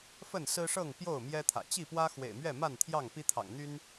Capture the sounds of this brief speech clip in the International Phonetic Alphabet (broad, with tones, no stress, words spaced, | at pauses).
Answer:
fə˥˨nsɹ̩˦ʂɤ˥˨ŋ pjo˥˨ʊ̯ mjɛ˦t̪ʰä̰˨˩ t͡ɕi˥˨pwä˦ xwḛ˨˩ɪ̯mɥɛ˥˨ma˥˨nt̪ʰjɑ˥˨ŋ pi˦t̪ʰɑ̰˨˩ŋn̪y˦n